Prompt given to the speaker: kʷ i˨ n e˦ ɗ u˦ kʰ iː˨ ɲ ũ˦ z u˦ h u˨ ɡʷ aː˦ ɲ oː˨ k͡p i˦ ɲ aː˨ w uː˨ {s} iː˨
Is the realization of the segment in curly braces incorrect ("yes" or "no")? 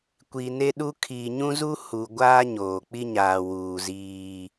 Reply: yes